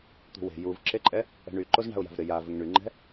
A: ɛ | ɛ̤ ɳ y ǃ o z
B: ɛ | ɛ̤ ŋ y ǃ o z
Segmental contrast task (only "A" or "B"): A